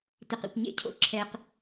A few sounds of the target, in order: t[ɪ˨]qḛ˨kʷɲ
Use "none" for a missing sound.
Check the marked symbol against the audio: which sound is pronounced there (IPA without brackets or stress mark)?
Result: ɪ˨